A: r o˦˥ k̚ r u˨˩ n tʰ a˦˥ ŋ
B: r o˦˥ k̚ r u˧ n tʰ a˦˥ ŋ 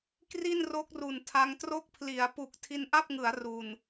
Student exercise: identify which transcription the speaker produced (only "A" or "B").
A